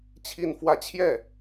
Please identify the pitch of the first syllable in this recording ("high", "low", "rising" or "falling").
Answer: falling